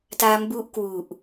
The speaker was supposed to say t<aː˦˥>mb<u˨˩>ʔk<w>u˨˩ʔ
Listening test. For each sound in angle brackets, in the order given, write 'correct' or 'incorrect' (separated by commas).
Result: incorrect, incorrect, correct